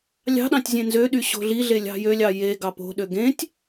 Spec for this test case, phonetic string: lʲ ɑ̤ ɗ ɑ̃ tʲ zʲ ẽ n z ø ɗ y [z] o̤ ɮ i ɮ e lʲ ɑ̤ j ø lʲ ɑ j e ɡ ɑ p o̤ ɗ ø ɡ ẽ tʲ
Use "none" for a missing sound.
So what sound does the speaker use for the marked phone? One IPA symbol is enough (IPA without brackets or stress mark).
ɕ